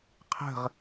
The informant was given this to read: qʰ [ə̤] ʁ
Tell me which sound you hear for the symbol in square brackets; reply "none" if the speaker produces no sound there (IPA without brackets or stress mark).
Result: ə̤